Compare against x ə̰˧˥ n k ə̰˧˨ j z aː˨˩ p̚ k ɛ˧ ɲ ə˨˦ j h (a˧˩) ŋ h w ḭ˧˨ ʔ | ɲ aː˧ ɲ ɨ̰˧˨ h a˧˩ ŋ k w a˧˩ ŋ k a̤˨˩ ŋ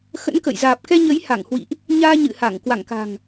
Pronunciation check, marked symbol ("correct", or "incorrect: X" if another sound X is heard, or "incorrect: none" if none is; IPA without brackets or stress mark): correct